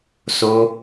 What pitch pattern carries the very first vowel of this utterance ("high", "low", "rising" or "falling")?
high